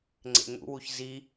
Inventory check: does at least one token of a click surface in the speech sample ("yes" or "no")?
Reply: yes